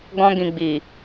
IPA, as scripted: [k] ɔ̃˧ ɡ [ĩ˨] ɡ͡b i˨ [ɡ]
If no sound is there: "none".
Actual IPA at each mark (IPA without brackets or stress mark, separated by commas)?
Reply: ɡ, ĩ˨, none